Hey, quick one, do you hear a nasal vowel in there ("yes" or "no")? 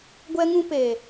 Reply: yes